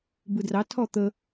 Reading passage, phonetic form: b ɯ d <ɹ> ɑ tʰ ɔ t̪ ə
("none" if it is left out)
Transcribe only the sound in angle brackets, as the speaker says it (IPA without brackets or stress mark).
r